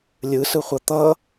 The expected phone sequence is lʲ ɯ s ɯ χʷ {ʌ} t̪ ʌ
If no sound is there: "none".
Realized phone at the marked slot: ʌ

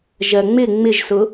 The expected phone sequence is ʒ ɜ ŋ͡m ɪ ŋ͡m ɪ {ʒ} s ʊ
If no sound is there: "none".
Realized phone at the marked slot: ʒ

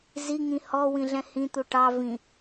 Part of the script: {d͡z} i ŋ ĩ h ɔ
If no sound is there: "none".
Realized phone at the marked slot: z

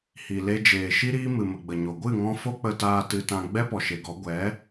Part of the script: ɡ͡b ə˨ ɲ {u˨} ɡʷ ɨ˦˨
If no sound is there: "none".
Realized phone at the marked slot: o˨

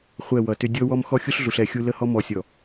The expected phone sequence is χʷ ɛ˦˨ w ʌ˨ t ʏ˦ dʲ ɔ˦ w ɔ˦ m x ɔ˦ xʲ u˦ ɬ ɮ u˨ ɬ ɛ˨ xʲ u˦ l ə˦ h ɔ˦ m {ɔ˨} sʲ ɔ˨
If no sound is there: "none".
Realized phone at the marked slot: ɔ˨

